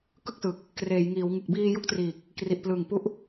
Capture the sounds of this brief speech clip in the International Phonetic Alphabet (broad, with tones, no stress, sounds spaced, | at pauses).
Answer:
k ɯ˥˩ k̚ s ɯ˨˩ k̚ | k r eː˩˦ j ŋ iː˩˦ w ŋ ɯ˨˩ k̚ b iː˧ j u˦˥ k̚ t r iː˨˩ k̚ | k r i˨˩ ʔ p l ɯ˨˩ ŋ p u˦˥ ʔ